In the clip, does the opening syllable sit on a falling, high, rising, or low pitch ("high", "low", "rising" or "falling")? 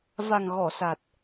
low